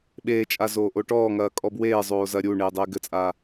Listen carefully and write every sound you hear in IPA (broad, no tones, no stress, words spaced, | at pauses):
ɓeːt͡ʃʼa zoːʔoʈɔːŋɐː kʼɔbweːzˤoː zɐɾʲuɳeː dˤeːɡɘt͡sʼa